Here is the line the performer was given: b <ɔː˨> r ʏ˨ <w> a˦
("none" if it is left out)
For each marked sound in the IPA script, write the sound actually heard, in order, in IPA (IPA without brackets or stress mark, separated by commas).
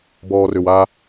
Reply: ɔː˨, w